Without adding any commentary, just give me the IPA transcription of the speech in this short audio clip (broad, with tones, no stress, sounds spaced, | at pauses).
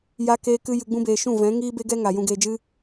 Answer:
j a˦ k eː˦ k ɨ˦ j ɨ˧ ɡ͡b ũ˦ b eː˧ ʃ ũ˦˨ v ɛ̃˨˦ ŋ iː˦ b e˦ ɡ ɛ˦ ŋ a˨ j ũ˨ ɡ eː˨ d͡ʒ ɨ˧